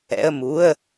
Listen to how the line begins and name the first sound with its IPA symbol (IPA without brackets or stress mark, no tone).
ɛ̰